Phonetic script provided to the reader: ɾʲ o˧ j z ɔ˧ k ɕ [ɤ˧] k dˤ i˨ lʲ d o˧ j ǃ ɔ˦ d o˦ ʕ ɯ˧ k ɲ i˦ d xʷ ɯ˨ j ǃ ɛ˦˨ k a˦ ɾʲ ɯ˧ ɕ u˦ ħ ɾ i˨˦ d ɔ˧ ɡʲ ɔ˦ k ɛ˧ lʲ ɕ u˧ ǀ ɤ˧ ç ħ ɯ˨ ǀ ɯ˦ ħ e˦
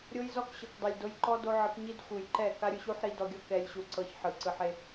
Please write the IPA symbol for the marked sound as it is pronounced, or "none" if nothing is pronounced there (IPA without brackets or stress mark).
ɤ˨